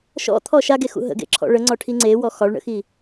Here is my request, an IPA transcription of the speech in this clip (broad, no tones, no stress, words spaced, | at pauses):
ʃɔ̰t̪ʰɔ ʃaɡexṵ ɦə̰ɡḛǁʰɔ̰ ɭəŋ͡ǀɒʈʰi ŋ͡ǀewɔ xɒɭɳə̰xi